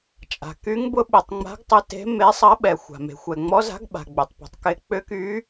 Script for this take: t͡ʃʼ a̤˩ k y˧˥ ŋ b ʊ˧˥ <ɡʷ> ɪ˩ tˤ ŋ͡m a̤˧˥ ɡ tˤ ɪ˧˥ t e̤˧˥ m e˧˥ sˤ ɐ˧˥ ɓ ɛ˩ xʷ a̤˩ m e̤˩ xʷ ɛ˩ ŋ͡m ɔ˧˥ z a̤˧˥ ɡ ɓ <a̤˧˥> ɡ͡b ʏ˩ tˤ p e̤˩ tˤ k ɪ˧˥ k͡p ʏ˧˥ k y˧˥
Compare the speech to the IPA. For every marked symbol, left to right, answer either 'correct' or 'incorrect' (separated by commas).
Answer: incorrect, incorrect